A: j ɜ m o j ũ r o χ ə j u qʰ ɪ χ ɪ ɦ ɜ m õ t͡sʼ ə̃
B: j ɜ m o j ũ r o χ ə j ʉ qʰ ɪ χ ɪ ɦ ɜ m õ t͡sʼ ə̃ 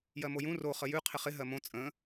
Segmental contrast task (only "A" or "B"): B